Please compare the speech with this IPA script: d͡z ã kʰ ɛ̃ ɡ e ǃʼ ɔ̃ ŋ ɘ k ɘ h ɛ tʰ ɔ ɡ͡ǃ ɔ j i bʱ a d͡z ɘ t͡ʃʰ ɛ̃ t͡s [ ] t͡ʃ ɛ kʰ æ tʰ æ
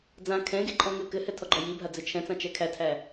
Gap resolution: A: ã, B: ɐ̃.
A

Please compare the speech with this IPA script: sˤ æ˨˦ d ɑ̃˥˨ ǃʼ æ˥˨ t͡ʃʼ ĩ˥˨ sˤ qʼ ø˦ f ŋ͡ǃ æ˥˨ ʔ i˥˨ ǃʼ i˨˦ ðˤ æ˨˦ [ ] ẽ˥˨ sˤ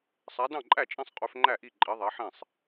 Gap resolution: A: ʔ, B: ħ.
B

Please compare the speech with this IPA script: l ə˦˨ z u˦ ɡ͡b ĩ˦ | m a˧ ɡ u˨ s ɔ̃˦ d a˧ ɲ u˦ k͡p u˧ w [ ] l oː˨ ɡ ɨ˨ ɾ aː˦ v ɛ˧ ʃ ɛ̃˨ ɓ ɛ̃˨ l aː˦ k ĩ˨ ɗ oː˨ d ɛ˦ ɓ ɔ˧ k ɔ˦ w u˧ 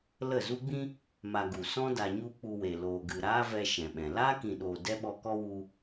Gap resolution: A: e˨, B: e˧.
A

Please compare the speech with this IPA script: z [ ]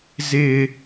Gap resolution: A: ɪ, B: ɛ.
A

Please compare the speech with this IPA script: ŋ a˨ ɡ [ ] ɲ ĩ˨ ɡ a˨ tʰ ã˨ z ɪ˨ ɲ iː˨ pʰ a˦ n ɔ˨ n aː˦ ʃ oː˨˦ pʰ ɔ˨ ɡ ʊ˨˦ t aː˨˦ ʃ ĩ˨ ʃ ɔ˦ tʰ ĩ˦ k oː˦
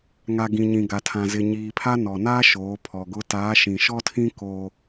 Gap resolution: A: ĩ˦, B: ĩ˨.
B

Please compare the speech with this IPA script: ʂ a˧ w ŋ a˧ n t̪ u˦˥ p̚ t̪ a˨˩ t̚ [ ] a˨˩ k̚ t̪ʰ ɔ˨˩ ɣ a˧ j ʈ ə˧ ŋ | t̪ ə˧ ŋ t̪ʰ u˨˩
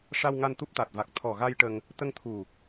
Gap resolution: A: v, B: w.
A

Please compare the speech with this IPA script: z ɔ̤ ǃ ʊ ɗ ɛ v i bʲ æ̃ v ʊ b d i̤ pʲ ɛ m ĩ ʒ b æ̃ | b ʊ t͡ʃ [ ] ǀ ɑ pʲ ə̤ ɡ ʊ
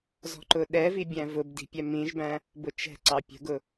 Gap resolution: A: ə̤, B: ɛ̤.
B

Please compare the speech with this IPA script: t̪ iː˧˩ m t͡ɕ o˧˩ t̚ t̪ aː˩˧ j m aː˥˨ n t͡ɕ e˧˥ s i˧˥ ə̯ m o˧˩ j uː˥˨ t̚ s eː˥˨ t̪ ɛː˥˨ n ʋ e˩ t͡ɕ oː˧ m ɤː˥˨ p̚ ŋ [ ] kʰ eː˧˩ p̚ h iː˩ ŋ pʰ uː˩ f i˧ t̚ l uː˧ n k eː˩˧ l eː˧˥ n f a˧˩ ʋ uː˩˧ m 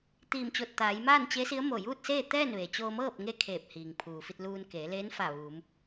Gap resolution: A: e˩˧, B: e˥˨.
B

